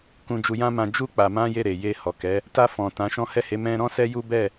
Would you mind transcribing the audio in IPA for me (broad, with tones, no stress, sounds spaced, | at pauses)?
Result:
k ũ˧ d͡ʒ u˧ j ã˦ m ã˧ d͡ʒ u˦ k͡p a˧ m ã˦ j e˦˨ ɾ e˨ j e˧ h ɔ˨ k ɛ˨˦ | t a˧ f ɔ̃˨ t ã˨˦ ʃ ɔ̃˦ h ɛ˦˨ h e˨˦ m ɛ̃˧ ɾ ɔ̃˦ s ɛ˦ j u˦ b ɛ˦˨